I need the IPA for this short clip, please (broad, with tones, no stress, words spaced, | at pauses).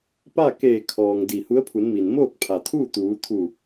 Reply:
pa˥˨keː˧˩ kʰɔː˩ŋ di˧˩hu˧˥ə̯pʰu˩˧nmi˩n moː˥˨k̚pʰa˩t̪ʰuː˥˨ t̪uː˩˧t̪ʰu˧˩